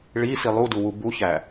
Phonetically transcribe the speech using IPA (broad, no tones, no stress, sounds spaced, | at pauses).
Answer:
ɭ i s i lˠ u d u w u b u ç æ